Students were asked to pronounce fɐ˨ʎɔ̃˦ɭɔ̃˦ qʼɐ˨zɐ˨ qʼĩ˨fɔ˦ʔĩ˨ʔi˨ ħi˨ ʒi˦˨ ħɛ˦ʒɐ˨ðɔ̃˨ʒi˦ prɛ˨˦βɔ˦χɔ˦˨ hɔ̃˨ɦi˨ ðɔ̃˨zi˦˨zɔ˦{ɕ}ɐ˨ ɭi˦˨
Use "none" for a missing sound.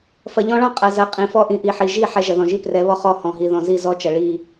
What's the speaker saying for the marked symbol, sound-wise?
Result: t͡ʃ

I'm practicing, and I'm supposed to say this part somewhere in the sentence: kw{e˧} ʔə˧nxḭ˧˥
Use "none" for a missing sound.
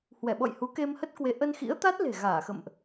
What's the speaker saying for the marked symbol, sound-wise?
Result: e˨˦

